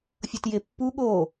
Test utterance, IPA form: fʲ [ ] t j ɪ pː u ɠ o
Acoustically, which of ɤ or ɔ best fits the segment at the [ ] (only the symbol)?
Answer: ɤ